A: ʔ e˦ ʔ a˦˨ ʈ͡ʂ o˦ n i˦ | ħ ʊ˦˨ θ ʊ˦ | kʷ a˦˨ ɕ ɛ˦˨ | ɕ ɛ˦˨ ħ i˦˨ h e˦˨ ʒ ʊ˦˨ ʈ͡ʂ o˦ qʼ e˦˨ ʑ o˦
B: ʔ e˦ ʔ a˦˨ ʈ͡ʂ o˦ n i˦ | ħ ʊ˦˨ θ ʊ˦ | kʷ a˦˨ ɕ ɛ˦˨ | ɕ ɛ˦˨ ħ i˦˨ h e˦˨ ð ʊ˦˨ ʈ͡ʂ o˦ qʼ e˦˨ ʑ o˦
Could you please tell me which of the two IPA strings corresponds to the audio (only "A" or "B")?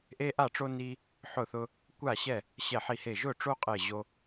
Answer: A